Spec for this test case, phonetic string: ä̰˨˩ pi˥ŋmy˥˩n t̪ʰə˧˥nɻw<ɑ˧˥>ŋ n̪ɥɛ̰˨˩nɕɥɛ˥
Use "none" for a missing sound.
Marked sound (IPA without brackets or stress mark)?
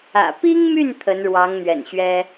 ɑ˧˥